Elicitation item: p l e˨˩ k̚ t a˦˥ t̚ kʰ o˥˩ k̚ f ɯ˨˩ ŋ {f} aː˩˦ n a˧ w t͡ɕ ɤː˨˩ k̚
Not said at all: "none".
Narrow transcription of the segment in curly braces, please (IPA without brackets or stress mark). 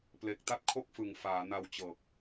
f